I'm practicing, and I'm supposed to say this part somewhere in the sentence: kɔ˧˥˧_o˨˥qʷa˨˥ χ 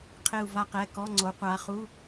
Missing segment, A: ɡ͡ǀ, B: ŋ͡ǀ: B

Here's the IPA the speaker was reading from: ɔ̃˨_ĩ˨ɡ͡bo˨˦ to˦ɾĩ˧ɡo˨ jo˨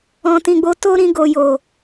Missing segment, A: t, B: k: A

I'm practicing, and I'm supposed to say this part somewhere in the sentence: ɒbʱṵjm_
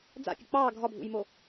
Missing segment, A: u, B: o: B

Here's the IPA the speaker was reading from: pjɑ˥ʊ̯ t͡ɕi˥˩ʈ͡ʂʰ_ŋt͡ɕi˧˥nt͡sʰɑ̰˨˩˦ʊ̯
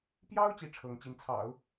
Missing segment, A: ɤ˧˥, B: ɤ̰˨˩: A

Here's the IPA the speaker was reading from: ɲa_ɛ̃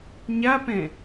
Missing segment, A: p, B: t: A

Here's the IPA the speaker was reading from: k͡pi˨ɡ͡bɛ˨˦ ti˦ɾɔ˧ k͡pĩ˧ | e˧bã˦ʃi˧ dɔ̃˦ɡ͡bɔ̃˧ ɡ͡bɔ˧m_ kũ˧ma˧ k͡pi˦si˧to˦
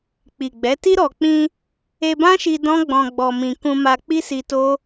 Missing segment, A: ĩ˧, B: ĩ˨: A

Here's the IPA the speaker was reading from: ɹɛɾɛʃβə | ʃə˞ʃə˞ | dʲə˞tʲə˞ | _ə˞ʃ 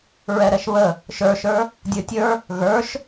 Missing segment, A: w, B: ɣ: B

